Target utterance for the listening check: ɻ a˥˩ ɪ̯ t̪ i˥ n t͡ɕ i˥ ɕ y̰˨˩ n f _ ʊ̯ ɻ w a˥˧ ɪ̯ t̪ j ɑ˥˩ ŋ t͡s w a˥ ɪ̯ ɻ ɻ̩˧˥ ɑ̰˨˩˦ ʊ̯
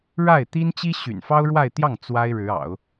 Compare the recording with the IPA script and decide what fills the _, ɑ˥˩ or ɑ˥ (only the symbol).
ɑ˥